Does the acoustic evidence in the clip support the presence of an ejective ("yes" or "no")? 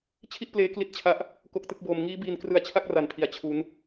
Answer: no